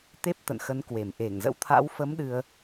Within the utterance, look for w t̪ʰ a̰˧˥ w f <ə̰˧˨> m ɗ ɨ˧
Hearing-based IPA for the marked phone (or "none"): ə˨˦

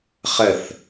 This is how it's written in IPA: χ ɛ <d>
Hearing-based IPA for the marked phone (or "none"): θ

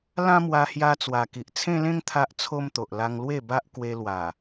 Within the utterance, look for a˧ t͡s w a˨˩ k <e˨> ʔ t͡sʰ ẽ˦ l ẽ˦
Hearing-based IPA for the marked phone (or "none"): i˨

